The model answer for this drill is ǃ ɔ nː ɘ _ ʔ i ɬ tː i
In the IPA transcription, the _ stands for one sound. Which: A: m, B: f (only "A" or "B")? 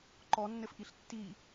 B